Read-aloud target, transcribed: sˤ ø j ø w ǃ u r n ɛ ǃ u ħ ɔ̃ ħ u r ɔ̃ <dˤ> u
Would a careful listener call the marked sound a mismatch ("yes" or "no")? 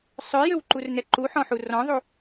yes